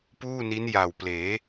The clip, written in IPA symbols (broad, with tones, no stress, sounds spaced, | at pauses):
p uː˥˩ n i˦˥ n j a˨˩ w p l eː˩˦